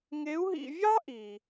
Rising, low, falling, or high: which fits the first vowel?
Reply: rising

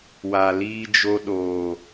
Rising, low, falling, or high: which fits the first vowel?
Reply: low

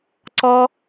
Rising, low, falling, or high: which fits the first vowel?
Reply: high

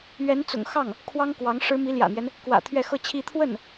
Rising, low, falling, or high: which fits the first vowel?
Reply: rising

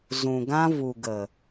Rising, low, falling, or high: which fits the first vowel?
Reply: low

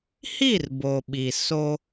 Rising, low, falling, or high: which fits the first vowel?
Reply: falling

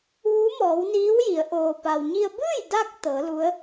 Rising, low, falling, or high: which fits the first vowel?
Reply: rising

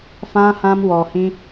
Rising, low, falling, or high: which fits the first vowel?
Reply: high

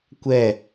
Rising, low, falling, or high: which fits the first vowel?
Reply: falling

